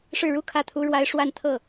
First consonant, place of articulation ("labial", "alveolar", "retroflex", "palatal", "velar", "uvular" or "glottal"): retroflex